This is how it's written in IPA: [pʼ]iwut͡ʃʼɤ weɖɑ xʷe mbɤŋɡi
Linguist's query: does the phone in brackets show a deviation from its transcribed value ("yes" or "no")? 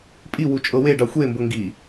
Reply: no